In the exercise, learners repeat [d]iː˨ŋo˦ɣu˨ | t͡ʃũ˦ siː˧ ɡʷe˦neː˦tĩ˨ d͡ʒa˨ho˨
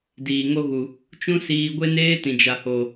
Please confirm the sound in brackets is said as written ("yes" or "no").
yes